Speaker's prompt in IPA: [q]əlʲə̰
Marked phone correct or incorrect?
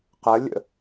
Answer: correct